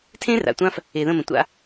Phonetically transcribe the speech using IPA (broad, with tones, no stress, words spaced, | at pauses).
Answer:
tʰẽ˦ra̰˨ tʷã˦f | e˨ðə̃˦˨mə̃˨ tʷa̰˦